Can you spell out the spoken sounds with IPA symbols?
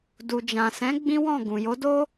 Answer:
d u˨ d͡ʒ ã˨ s ɛ̃˨˦ ɡ͡b ĩ˦ w ɔ̃˦˨ ɡ ũ˨ j o˨˦ d o˦

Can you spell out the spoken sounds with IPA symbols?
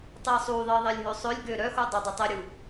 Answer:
tˤ e sˤ u ðˤ i ðˤ e lʲ ɦ ø sˤ ø lʲ ɡ ø ɾ œ x u dˤ ø dˤ ə tˤ i ɾʲ u

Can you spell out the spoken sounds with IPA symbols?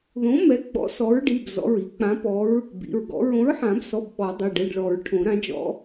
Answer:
ð õ˨˥ m ɛ˨˥ ɡ͡b ɔ̰˨˥ s ɔ˨˥ ɹ ɖ i˩˧˩ b z ɔ̰˩˧˩ ɹ i˨˩˦ k͡p ã˨˥ p ɔ˨˥ ɹ | b ḭ˩˧˩ ɹ ɡ ɔ̰˨˥ ɹ õ˨˥ ɹ ħ ã˨˩˦ b s ɔ˩˧˩ b ɓ ɔ˨˩˦ dˤ e˩˧˩ ɖ ɛ˩˧˩ ɖ ɭ ɔ˨˩˦ ɹ ʈʰ õ˨˩˦ ɾ ã˨˥ d͡ʒ ɔ̰˨˥

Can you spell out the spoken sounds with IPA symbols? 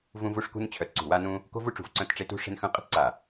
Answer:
v ũ˦ v u˦ ʂ k ṳ˦ n t͡ɕʰ œ˧˩ t ǀ ṳ˧˩ w a˦ n ũ˦ | k o̤˦ v u˦ ʈ͡ʂ ṳ˧˩ v ǀ œ̃˦ t ʈ͡ʂ e˦ t ṳ˦ ʂ e̤˦ n x œ̃˦ qʼ ə̤˦ t ǀ a˧˩

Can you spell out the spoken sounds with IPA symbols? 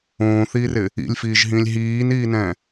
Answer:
õː θ iː r ɪ | ḭ lʲ f iː ʒ ɦ ĩ lʲ ɦ iː n iː n ɛ̃

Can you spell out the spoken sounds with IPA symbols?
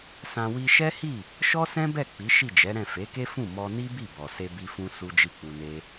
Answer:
s ã˧ w i˧ ʃ ɛ˦ h i˦˨ | ʃ ɔ˦ s ɛ̃˦ b ɛ˦˨ k͡p i˨˦ ʃ i˦˨ d͡ʒ ɛ˨˦ ɾ ɛ̃˦˨ f e˨˦ k e˦ f ũ˦˨ m ɔ˧ n i˦ b i˦˨ b ɔ˨ s e˧ b i˧ f ũ˧ s u˦ d͡ʒ i˦˨ k͡p u˧ n e˦

